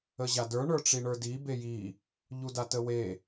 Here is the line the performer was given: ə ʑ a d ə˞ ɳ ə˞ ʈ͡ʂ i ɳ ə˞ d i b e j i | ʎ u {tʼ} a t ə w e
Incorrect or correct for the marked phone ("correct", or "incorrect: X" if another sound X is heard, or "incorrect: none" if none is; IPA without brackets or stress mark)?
incorrect: d